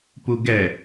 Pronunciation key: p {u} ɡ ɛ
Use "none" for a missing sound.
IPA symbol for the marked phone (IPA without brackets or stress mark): u